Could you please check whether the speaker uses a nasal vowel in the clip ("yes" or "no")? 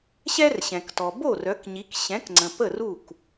yes